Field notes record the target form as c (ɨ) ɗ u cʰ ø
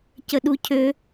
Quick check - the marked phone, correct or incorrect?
incorrect